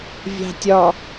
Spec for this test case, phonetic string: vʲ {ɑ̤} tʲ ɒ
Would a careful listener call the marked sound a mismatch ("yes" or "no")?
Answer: no